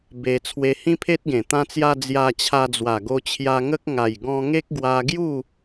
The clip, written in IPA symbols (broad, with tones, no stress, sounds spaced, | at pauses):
b e˧ t͡sʰ w e˧ h ĩ˦ pʰ e˦ t̚ ɡ ẽ˨˩ t̪ ã˧ t͡s j a˧ d͡z j a˧ t͡ɕʰ a˧ d͡z w a˨˩ ɡ o˧ t͡ɕʰ j a˧ ŋ ə˦ k̚ ŋ a˨˩ j ɡ ɔ̃˧ ŋ e˦ k̚ ɡ w a˧ ɡ j u˥˧